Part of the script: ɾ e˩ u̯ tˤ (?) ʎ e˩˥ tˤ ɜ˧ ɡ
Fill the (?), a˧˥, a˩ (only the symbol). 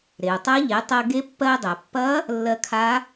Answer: a˧˥